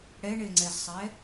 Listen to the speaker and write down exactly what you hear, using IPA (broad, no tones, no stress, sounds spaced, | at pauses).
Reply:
ɽ ɛ ɳ e ŋ͡ǀ ɛ z sˤ ɛ